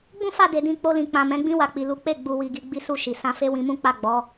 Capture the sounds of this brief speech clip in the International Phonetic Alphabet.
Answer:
ɡ͡b ũ˦ f a˦˨ d e˧ d ĩ˦ k͡p o˧ l ĩ˨ k͡p ã˨ m ɛ̃˨˦ ɡ͡b ĩ˦ w a˧ k͡p i˨ l u˨˦ k͡p e˦˨ ɡ͡b u˨ w i˨ ɡ i˨ ɡ͡b i˧ s u˧ ʃ i˨ s ã˧ f e˦ w ĩ˧ m ũ˦ k͡p a˦˨ ɡ͡b ɔ˨˦

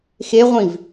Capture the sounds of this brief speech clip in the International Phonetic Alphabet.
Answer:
x e ʁʷ ĩ v

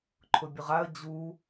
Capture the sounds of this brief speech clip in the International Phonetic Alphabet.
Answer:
ǃʰ ʊ bʲ ʊ ʁ a ə̯ d͡ʑ uː

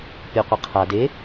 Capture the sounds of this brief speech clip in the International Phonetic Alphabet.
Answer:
pʲ o qʷ ɘ qʰ a d e

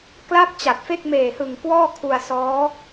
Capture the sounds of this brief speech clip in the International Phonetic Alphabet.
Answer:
k l a˥˩ p̚ t͡ɕ a˨˩ t̚ f e˥˩ k̚ m eː˨˩ h ɯ˨˩ ŋ k w ɔː˥˩ kʰ u˧ a̯ s ɔː˦˥

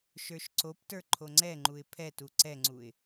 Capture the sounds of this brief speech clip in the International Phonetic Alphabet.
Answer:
ʃ ə˞ ʃ ǀ o p t ə˞ ǃʰ o ŋ͡ǀ ɛ ŋ͡ǃ u ɪ̯ pʰ ɛ t u ǀ ɛ ŋ͡ǀ u ɪ̯

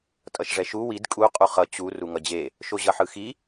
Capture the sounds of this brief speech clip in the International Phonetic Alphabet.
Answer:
tʼ ʌ ʃ ʐ ɛ ʃ u w i d kʼ u qʼ u χ ʌ t͡ɕ u r u ŋ ʌ d͡ʑ e | ʃ o ʑ ʌ ħ ɯ x i

